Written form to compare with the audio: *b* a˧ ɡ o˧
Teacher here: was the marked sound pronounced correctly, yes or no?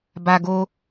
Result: yes